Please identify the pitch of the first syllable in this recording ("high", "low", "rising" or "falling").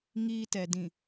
high